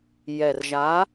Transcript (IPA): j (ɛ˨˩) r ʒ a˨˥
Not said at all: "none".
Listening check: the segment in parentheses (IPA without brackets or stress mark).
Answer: ɛ˨˩